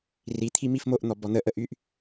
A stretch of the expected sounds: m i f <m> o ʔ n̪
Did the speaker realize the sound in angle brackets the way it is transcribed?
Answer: yes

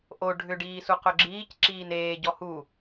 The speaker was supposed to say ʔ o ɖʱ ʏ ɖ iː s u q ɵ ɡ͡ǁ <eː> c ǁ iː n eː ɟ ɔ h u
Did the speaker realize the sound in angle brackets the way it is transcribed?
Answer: no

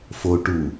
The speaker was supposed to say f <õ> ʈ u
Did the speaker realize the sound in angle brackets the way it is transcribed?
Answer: no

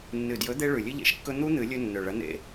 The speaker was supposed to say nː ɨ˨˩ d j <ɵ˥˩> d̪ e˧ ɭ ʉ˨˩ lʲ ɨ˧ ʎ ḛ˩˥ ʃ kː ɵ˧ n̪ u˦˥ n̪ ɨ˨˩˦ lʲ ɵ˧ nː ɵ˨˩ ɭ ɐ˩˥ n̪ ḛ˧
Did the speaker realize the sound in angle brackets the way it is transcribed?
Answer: no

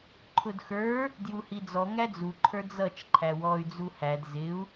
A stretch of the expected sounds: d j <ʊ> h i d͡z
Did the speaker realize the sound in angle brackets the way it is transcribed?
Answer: no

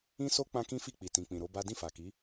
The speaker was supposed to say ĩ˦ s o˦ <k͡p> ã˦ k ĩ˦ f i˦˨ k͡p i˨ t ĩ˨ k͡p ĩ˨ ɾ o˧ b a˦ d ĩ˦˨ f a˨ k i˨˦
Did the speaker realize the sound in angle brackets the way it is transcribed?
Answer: yes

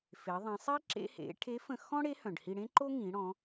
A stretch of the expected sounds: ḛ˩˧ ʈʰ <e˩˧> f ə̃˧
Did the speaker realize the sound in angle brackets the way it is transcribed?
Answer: no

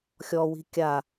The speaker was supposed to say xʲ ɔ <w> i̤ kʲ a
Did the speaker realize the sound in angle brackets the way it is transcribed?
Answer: yes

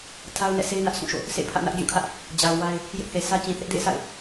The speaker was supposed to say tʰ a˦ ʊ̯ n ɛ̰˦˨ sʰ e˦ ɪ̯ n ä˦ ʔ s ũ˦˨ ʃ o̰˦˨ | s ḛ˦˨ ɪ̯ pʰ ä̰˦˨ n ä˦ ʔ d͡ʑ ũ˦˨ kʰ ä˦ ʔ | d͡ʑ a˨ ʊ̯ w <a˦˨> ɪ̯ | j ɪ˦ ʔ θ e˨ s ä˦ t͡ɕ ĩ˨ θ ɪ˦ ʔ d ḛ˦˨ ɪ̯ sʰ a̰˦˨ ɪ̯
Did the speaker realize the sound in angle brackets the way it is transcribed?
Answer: no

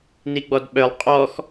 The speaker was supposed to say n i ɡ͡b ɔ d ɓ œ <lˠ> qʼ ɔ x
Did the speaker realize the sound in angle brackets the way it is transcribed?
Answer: yes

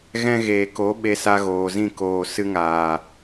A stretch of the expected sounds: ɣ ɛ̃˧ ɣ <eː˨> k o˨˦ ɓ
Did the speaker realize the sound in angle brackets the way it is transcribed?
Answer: yes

